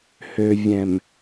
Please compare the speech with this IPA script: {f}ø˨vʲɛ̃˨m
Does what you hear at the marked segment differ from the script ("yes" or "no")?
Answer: yes